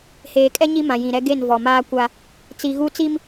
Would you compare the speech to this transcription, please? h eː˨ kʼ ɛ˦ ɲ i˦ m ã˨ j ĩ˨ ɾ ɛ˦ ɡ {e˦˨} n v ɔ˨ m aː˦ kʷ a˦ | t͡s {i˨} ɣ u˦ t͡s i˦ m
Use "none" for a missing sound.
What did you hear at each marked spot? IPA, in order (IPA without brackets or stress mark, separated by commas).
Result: e˦˨, i˨